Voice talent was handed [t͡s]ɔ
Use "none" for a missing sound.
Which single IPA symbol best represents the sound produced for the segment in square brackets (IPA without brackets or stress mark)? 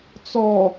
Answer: t͡s